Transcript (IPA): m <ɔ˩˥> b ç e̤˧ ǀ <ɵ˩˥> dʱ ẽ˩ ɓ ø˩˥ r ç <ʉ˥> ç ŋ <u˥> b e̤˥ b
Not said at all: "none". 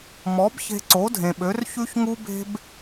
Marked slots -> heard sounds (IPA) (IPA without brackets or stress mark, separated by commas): ɔ˩˥, o˩˥, ʉ˥, u˥